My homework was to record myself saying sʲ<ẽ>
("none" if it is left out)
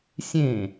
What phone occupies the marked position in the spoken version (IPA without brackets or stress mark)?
ẽ